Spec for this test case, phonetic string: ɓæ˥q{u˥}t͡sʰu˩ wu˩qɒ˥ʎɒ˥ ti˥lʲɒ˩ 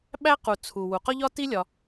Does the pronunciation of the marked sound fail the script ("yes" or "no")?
yes